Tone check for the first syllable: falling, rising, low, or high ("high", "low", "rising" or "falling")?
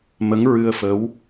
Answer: rising